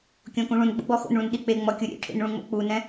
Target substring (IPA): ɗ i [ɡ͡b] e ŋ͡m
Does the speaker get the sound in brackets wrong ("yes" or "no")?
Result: yes